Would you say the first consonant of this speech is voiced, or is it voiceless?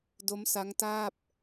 voiced